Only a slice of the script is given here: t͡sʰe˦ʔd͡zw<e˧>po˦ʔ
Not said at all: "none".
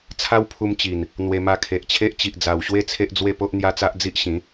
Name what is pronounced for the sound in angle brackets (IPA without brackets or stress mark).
e˥˧